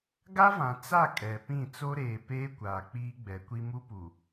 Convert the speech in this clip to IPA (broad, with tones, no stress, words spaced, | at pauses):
ɡa˦vã˨ t͡sa˦˨ kʼɛ˨pĩ˦˨ t͡so˦ɾeː˨ peː˦kʷaː˨ k͡piː˦ɡ͡bɛ˨˦kʷi˦ mu˦pu˨